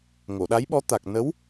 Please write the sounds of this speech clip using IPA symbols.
ŋ o˨˩˨ ɗ a˧˥ j ɓ ɔ˧˥ t̪ a˨˩ k̚ n ə˧˥ w

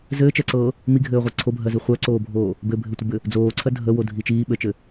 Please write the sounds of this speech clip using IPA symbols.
z ɘː t͡ʃ ɜ ǀ ɤː | m i ɡʱ ɘː ʁʷ ɛ ǀʰ o bʱ ɜ z i χʷ ɜ ǀ oː bʱ oː | b ɘ bʱ ɘ tʷ ə b ɘ | d͡z oː ǀʰ ɜ dʱ ə w o dʱ i t͡ʃ iː ɓ ɘ t͡ʃ ɘ

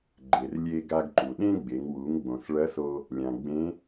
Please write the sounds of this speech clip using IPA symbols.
ɡ͡ǃ e˩ r lʲ e˧ ɡ a˧ ɡ ǃ u˩ ɗ ẽ˥ ɡ͡b e˩˧ ŋ w u˩˧ ŋ ɡ͡b õ˩ s ɭ ɐ˧˥ s o˧ | lʲ ã˩ ɡ͡b ẽ˧˥

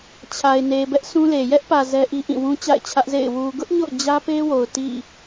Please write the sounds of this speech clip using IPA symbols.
t͡ɕʰ a˨ ɪ̯ n e˨ b ɛ˦ ʔ s ũ˦ l e˨ j ɛ˦ ʔ p ä˨ z ɛ˦ ʔ i˦ ʔ ĩ˦˨ w ũ˦ t͡ɕ a̰˦˨ ɪ̯ t͡ɕʰ ä˦ ʔ z ḛ˦˨ ɪ̯ w u˨ ɡ ʊ˦ ʔ ɲ o̰˦˨ ʊ̯ d͡ʑ ä˦ p e˦ w o˨ ʊ̯ t ḭ˦˨

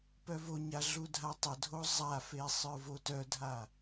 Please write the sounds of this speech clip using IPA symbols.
p œ v o ɲ a ɮ u dʱ a tˤ ə dʱ o zˤ a f e sˤ ə˞ v o t œ dʱ a

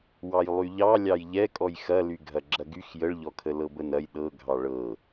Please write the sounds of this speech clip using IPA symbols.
w ɑ j lˠ y ʎ ɑ lʲ ɑ j ʎ ɛ kʼ ɔ j x ɐ l y ɡʱ ɐ ɡ͡ǁ ɐ ɡ y x j ə ɭ ʎ ɔ kʰ ə l ɤ b ə n ɐ j ɗ ɤ ɡʱ ɑ ɭ ɤ

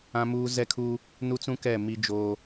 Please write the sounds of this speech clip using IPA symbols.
ã˦ m uː˦ z ɛ˦ kʰ uː˦ | n u˦ t͡s ũ˦ k ɛ˦˨ m i˦ d͡ʒ oː˦

